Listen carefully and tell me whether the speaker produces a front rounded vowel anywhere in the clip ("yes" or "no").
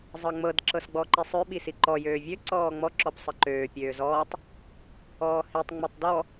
yes